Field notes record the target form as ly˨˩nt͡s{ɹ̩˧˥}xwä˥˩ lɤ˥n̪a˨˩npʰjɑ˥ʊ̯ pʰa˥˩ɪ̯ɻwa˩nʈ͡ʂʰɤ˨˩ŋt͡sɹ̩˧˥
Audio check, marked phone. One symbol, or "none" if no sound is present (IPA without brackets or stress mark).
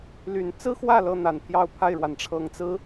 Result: ɹ̩˥